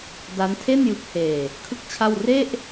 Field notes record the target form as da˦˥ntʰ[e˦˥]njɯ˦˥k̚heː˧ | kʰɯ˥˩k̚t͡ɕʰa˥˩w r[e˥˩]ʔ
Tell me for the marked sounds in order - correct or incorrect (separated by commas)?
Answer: incorrect, correct